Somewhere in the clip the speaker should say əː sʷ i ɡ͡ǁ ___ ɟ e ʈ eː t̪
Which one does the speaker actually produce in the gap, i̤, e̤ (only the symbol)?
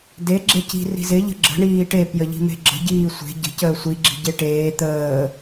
i̤